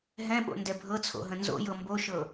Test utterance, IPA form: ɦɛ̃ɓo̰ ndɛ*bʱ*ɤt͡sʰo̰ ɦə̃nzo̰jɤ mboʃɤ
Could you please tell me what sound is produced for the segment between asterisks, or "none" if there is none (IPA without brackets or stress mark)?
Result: bʱ